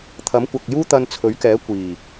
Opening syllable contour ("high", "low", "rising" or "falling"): rising